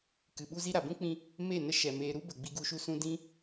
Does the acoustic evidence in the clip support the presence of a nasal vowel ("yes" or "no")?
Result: yes